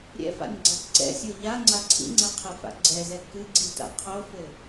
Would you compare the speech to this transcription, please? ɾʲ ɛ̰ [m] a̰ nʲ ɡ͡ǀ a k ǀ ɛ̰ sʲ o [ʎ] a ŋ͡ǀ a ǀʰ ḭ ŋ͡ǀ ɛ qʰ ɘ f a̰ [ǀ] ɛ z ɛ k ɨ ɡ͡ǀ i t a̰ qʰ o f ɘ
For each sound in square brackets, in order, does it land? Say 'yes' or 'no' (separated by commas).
no, yes, no